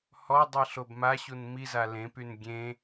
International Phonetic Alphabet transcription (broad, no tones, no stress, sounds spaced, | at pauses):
h ɔ dˤ i ɬ o b m a ɕ u n m i z a l ẽ p y n ɡʲ ẽ